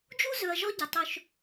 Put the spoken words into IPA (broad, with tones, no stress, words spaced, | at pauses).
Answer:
d͡ʒu˦zɵ˨ɐ̯ ʒɔ˦ɟʌ˨ tˤɵ˧ʃ